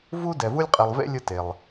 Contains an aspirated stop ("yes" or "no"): no